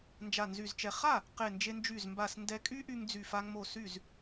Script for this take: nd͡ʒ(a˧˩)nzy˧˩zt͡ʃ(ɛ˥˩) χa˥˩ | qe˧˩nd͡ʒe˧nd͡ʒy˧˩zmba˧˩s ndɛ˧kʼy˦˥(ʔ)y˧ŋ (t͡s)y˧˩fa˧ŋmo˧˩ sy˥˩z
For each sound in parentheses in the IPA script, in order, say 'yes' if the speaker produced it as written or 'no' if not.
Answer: yes, no, yes, no

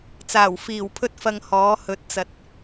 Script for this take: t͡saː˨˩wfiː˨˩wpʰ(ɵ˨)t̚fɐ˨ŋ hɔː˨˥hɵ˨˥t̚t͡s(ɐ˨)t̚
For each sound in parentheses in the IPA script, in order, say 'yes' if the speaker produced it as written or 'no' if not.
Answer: no, yes

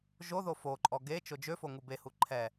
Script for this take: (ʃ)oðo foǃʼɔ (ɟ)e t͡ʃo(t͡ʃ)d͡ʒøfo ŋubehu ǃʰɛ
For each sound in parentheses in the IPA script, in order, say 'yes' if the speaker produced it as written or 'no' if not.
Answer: no, no, no

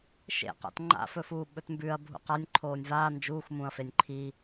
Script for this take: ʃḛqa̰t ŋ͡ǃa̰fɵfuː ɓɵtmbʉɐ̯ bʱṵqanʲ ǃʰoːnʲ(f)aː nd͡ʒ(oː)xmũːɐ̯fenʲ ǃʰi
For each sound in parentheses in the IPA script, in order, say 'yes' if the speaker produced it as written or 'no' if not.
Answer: no, no

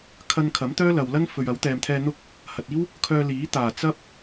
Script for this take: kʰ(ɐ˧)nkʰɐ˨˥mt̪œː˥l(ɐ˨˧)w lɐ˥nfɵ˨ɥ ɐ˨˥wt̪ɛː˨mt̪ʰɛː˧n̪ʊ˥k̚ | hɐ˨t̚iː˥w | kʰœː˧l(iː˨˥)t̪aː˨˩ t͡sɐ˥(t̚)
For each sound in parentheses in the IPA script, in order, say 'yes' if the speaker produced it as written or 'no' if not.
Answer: yes, no, yes, no

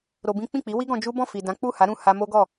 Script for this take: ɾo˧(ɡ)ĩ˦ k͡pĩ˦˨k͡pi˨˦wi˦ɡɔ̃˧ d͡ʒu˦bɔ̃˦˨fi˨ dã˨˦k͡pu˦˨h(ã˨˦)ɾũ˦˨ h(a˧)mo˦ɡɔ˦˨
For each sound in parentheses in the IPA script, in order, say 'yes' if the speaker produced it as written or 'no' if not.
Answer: no, no, yes

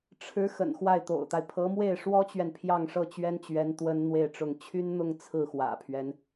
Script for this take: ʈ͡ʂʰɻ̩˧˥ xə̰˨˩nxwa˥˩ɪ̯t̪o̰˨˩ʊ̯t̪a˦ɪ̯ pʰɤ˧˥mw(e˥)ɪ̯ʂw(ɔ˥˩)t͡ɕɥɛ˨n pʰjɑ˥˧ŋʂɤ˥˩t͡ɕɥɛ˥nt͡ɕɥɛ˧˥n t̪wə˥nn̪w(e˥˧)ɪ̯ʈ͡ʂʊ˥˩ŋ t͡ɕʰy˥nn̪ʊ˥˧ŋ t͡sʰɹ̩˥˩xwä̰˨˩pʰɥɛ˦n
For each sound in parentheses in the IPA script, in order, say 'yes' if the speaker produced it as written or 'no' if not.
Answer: no, no, yes

